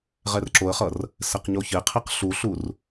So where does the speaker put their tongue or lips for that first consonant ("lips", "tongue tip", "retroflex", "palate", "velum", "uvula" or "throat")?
uvula